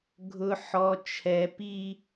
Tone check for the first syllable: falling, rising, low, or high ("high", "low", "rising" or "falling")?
high